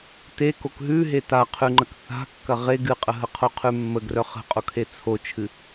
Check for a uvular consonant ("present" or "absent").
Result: present